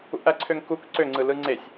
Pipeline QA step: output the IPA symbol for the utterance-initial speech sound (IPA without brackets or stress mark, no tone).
ṵ